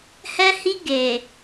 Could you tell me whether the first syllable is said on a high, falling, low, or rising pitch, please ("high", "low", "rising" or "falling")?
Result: high